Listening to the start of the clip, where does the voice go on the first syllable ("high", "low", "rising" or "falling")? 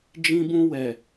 high